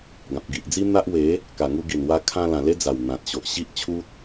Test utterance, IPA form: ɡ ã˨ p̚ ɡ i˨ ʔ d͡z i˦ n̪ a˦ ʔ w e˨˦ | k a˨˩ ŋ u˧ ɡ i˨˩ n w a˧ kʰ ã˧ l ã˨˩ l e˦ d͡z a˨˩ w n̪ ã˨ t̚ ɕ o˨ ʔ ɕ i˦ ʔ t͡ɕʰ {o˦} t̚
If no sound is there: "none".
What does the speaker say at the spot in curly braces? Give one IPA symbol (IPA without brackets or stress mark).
u˦